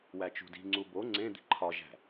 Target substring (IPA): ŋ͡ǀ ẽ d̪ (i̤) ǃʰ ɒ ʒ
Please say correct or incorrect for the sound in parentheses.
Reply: correct